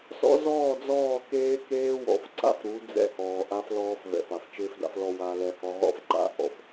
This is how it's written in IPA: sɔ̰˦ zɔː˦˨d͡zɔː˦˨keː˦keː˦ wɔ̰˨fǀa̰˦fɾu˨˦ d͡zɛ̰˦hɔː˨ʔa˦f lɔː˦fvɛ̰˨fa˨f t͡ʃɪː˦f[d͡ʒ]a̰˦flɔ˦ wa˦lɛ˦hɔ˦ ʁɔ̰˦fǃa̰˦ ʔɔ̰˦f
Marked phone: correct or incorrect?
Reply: incorrect